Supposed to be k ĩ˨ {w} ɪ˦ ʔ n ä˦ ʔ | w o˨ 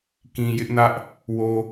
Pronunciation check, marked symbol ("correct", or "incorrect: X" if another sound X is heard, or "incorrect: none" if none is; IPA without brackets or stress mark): incorrect: j